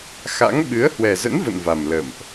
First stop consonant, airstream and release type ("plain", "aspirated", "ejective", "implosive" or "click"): implosive